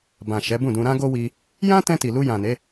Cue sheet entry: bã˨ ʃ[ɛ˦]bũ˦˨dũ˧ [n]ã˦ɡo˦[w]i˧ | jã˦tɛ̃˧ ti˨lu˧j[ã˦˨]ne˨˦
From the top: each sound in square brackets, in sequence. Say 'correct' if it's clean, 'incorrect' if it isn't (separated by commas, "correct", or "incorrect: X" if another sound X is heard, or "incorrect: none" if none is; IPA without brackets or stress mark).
incorrect: ɛ˨˦, incorrect: ɾ, correct, incorrect: ã˨